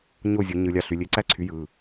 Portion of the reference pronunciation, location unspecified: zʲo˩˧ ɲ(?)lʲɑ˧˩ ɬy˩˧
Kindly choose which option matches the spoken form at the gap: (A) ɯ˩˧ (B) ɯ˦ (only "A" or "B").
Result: A